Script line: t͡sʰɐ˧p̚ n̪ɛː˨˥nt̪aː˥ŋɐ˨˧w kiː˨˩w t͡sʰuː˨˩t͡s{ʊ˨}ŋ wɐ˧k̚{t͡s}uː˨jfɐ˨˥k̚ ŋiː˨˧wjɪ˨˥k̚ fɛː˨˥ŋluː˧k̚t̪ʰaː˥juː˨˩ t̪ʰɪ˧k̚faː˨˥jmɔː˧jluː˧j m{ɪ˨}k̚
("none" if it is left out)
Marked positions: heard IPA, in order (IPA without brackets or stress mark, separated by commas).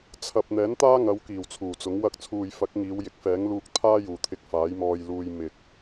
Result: ʊ˨˥, t͡sʰ, ɪ˨